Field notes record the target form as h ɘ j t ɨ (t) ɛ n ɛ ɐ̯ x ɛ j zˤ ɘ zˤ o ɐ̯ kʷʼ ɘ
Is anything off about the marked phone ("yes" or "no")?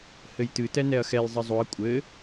no